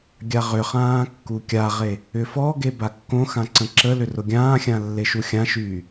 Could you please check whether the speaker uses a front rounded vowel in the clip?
yes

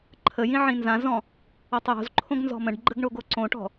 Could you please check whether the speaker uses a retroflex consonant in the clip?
yes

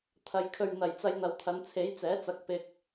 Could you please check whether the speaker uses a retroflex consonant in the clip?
no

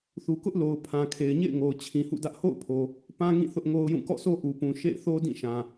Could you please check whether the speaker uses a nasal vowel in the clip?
yes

